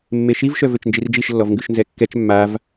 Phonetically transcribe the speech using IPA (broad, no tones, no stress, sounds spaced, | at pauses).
mː e ʃ i v ʃ œ v ø t͡ʃ n d͡ʒ i r d͡ʒ i ʃ lː ɔ v ŋ ɡ ʉ ʃ n z ɛ kː ɛ t͡ʃ mː a v